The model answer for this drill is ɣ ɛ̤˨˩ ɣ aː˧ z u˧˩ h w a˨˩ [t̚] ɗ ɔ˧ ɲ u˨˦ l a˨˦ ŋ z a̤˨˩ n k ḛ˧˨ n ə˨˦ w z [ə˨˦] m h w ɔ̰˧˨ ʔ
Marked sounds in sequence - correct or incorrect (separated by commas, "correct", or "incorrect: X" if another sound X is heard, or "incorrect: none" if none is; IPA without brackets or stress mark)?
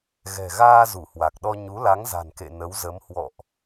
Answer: incorrect: k̚, correct